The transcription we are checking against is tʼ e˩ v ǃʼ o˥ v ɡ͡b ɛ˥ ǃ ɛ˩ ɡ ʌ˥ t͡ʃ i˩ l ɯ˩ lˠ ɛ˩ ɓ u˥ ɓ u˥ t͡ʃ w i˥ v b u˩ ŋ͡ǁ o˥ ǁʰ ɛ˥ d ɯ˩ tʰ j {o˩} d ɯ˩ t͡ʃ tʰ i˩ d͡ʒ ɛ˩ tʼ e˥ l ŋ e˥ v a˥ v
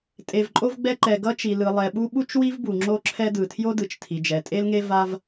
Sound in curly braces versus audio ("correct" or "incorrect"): incorrect